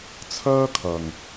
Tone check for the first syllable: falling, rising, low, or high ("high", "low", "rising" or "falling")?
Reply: high